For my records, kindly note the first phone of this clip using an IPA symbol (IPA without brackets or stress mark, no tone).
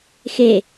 x